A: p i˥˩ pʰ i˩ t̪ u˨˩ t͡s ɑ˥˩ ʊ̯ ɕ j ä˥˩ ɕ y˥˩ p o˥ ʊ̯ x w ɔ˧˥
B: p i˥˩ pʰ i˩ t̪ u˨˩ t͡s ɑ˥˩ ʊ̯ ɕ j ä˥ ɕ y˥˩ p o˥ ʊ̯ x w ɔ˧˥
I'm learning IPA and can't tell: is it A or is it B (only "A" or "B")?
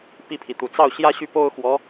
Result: B